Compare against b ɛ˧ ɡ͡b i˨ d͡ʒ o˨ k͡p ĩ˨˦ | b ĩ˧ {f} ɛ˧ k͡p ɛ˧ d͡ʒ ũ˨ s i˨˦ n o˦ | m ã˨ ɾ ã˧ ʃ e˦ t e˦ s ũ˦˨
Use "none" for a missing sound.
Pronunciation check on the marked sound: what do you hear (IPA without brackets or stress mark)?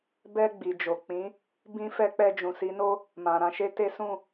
f